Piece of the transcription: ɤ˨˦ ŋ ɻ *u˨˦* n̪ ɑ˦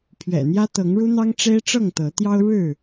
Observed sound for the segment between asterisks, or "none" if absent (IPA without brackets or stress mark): u˦